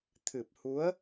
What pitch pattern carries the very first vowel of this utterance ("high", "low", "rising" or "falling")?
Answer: low